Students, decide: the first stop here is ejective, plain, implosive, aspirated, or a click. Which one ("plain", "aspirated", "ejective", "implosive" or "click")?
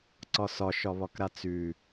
click